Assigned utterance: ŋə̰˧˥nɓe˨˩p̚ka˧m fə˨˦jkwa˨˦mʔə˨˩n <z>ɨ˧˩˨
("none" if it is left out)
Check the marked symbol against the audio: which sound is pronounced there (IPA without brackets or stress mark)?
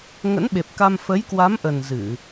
z